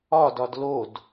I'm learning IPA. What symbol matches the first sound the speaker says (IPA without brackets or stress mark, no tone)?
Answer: ɒ